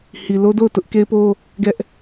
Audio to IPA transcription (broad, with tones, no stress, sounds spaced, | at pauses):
h i˨ l o˦ d o˦˨ ʊ̯ t ʊ˦ ʔ k e˦ ɪ̯ p o˦ | ɡ ɛ˦ ʔ